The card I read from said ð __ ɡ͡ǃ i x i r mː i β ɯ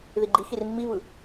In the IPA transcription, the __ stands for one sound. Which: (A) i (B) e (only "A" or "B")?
A